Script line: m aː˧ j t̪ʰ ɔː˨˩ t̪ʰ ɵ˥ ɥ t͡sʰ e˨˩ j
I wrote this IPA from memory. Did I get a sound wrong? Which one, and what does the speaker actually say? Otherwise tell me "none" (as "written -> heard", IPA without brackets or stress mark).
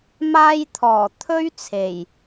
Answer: none